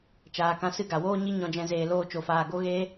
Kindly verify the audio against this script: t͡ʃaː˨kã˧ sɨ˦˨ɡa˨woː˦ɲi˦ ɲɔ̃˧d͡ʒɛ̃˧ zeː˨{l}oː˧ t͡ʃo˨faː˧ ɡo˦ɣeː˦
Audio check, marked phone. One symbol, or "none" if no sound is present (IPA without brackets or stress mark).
l